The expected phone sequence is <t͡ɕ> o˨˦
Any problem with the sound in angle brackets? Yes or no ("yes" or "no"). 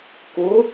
yes